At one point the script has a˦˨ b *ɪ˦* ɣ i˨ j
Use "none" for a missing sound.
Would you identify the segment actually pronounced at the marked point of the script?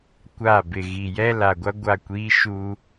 ɪ˨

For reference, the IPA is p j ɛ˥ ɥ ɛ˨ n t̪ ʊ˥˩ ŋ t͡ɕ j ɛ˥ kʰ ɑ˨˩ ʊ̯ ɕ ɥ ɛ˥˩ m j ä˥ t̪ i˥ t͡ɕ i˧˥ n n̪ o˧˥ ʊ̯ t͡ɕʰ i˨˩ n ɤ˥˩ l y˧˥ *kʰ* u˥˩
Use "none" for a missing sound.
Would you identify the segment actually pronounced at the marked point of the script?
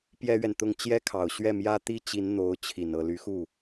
x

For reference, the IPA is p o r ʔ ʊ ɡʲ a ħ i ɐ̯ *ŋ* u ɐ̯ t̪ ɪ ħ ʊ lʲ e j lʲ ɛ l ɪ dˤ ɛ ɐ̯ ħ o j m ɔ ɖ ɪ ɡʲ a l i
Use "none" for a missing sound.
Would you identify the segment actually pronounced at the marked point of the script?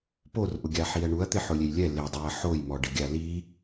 ɳ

